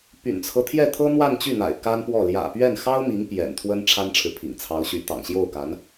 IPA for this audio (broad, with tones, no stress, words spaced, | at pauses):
py̰˨˩nt͡sʰɤ˦ t̪ʰjɛ˥˩t̪ʰɤ˥ n̪wa˥˧nt͡ɕy˥˩n̪a̰˨˩ɪ̯ ka˥npwɔ˥˩ ljä̰˨˩pɥɛ˥˩n xɑ˥ʊ̯mi˧˥ŋ pjɛ̰˨˩nt̪ʰwə˥n ʈ͡ʂʰa˥nʈ͡ʂʰɻ̩˨ pʰḭ˨˩ŋt͡sʰɑ˧˥ʊ̯ɕy˧˥ t̪ɑ̰˨˩ŋɕjo˥˩ʊ̯ka˧˥n